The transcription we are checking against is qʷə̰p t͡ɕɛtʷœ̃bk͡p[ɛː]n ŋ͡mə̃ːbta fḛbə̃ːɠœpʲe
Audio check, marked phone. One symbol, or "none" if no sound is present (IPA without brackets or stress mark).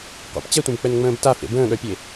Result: ɛ